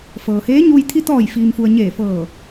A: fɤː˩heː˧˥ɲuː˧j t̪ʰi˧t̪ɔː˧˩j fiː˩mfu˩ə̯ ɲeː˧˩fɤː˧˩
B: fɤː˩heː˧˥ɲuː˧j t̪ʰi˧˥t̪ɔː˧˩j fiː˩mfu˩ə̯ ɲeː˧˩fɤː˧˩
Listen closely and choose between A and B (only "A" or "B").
A